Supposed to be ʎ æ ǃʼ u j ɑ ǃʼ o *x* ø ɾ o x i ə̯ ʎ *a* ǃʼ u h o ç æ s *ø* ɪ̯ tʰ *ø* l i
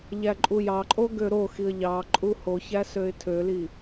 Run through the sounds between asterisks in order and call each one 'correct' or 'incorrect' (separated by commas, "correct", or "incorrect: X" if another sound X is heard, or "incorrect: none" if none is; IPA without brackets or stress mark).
incorrect: ɡ, incorrect: ɑ, correct, correct